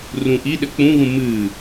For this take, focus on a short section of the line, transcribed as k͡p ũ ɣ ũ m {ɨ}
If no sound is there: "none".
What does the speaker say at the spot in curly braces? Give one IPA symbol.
ɨ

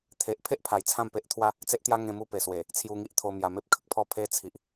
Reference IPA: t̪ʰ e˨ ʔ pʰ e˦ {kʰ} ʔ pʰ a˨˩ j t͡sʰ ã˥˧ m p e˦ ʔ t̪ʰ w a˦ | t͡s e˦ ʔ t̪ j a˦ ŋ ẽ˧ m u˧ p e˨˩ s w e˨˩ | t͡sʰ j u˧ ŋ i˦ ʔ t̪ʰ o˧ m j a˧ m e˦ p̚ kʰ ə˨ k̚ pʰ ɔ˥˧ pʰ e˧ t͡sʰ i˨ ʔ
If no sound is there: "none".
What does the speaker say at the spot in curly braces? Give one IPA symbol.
none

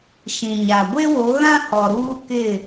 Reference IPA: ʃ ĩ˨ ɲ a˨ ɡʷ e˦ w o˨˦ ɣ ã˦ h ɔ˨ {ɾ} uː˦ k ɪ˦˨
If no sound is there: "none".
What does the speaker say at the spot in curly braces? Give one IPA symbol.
ɾ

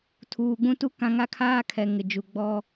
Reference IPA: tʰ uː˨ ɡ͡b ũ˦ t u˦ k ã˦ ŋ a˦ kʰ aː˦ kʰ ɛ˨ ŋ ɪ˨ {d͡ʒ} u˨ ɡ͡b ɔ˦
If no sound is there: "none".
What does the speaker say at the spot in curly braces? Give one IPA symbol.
d͡ʒ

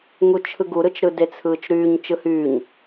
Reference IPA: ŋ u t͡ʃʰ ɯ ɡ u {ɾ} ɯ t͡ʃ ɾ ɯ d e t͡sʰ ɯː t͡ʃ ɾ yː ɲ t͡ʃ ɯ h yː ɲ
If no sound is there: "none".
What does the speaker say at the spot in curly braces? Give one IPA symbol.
ɾ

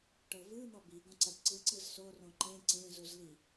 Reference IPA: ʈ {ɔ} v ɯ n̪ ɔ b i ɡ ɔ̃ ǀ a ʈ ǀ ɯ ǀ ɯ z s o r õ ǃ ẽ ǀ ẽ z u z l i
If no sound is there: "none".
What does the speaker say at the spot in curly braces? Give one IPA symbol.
ɤ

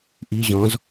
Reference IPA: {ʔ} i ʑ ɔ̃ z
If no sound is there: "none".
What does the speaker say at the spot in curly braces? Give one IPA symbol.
ʔ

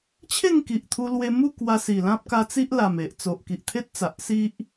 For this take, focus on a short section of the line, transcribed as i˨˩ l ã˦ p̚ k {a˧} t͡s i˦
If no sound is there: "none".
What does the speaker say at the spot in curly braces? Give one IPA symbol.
a˧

